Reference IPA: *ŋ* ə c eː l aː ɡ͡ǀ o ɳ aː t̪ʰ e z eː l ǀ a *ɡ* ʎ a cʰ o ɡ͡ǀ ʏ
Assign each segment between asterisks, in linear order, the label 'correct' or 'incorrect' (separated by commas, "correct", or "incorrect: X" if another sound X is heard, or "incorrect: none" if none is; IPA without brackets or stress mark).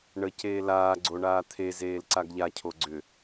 incorrect: ɳ, correct